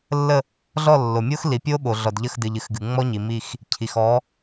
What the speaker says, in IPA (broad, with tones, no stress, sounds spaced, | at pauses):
lː ə˦˨ | ɮ ɔ˦˨ lː o˨ mʲ o˦ x l i˨ pʲ o˦ ɓ o˨ ɮ ɔ˨ d ʎ ə˦˨ x d ɨ˨ ʎ ɨ˨˦ x ɡ ɨ˨ ŋ͡m ɔ˦ ɲ i˨ m i˦˨ x | cʰ i˨ x ɔ˨˦